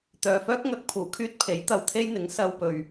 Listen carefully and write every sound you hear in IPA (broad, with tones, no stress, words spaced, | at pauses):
t̪œː˨fœː˥k̚ ŋɐ˨˥k̚pʰuː˨˩kʰyː˥t̚ pʰe˨˥jt̪ɐ˨wt̪ʰe˥jn̪ɪ˨˥ŋ sɐ˧wpɵ˨ɥ